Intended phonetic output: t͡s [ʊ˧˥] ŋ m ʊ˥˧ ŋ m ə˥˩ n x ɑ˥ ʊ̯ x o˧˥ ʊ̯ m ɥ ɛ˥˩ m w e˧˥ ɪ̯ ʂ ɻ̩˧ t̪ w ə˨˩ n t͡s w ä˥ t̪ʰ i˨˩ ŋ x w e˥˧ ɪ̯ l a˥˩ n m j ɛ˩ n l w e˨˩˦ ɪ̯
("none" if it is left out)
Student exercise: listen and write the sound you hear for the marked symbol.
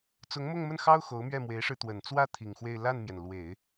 ʊ˧˥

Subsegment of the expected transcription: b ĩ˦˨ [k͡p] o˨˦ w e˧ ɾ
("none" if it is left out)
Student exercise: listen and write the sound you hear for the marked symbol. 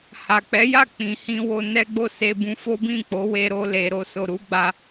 k͡p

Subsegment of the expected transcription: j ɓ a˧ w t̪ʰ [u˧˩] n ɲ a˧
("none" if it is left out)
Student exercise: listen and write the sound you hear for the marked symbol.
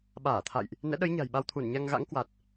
u˧˩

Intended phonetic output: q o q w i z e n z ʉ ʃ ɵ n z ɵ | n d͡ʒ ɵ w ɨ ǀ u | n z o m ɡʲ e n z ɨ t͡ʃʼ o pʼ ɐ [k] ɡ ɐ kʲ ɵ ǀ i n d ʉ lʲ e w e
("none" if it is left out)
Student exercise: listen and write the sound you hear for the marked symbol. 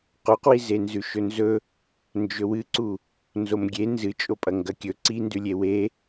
ŋ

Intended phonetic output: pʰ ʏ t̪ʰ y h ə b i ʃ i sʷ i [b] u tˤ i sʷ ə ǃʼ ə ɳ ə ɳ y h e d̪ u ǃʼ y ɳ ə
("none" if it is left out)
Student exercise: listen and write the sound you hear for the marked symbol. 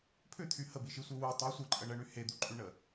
w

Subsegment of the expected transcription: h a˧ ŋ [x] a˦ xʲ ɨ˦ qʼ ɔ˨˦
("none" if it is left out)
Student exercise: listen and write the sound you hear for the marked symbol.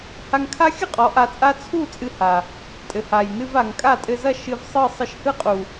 kʰ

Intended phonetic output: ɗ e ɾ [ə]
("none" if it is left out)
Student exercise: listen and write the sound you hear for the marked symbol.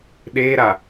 a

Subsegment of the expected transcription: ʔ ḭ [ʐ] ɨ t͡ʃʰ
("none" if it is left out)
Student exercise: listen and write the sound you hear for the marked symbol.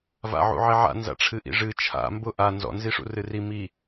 ʐ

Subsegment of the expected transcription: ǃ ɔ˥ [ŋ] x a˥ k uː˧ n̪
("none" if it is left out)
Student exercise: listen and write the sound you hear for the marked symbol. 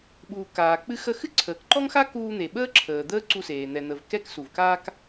ŋ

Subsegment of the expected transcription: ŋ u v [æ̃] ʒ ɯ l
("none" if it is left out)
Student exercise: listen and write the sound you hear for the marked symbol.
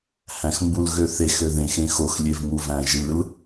æ̃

